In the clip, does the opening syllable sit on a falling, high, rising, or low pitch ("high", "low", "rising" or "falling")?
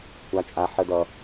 high